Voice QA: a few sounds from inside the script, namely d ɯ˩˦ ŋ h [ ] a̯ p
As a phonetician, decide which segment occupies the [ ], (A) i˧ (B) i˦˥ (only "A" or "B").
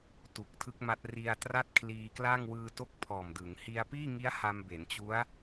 A